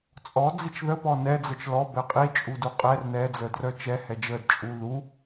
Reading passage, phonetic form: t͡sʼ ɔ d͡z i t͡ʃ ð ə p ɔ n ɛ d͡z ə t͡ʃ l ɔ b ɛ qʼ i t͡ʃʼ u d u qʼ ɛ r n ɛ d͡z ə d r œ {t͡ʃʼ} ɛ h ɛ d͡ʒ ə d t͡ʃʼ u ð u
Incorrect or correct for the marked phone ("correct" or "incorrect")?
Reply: incorrect